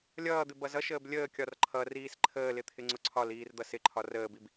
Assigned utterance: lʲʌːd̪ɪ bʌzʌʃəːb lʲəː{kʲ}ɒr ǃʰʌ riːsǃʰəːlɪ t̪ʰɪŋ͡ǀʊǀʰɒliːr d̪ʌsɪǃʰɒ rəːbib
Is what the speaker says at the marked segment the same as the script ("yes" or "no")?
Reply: yes